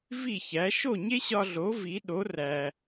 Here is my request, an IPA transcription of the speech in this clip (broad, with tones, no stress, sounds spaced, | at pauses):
v i˥˩ ç æ˩˥ ʃ o˥˩ ɲ e˥ ɕ ɒ˧ ɮ o˩˥ v i˩˥ ɗ o˩˥ r æ˩